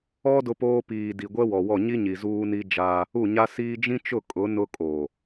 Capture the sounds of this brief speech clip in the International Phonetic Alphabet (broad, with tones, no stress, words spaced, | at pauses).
ɔ˦ dʊ˦poː˦ piː˨di˨ ɡʷɛ˦wɔ˨wɔ˦˨ ɲi˦ɲi˨ zuː˦ni˦d͡ʒaː˦ | u˦˨ɲa˦siː˦ d͡ʒĩ˦t͡ʃʊ˦˨kʼʊ˨˦ nʊ˦kʼoː˨